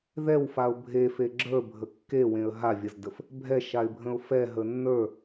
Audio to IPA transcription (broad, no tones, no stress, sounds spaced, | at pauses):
ð ɛ w f a ʊ̯ bʱ e f e ɡ͡ǁ ə˞ bʱ ə kː e w ẽ ə̯ ɦ a vʲ ə z d ə f | bʱ ɛ ʃ a ɪ̯ bʱ ə̃ ʊ̯ f ɛ ɦ ə nː ə˞